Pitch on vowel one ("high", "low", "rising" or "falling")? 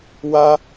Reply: high